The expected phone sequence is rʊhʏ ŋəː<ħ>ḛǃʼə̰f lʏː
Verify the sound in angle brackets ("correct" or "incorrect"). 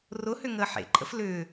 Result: correct